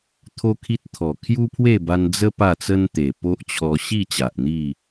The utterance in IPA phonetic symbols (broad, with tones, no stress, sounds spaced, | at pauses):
t̪ʰ o˦ kʰ i˦ t̚ t̪ʰ ɔ˨˩ kʰ j u˦ pʰ w e˥˧ b a˧ n d͡z ə˦ p a˥˧ t͡s ə˦ n t̪ e˨˩ p o˦ ʔ t͡ɕʰ ɔ˧ ɕ i˥˧ t͡ɕ a˨ ʔ n̪ i˥˧